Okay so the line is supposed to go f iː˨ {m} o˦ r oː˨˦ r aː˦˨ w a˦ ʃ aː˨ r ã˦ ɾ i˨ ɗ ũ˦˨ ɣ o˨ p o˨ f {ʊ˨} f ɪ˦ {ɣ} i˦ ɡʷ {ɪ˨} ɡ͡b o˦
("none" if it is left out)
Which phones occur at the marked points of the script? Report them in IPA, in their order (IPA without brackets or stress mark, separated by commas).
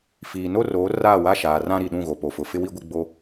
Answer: n, ʊ˨, w, ɪ˦